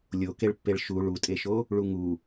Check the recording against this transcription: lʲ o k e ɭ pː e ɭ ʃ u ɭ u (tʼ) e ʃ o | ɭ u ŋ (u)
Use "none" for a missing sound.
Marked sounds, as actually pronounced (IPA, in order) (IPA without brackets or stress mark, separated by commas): tʼ, u